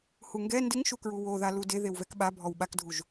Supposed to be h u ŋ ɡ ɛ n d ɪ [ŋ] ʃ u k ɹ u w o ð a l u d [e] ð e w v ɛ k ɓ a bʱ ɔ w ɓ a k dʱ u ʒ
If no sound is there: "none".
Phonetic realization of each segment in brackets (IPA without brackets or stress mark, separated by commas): ŋ, e